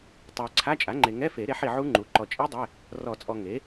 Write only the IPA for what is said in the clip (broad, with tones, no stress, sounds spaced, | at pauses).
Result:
tˤ ɛ˨ ə̯ ǀʰ a˧˥˧ t͡ʃʼ a˩˥ ŋ͡ǃ e˨ ŋ ɛ˧˥˧ f e˨˩˦ ɾ e˩˥ ħ i˨ ʕ u˦˥ ŋ͡ǃ u˩˥ ǃ ɔ˨ t͡ʃʼ i˦˥ dˤ e˧˥˧ | r ɔ˨˩˦ t͡sʼ ɔ˨ ŋ e˩˥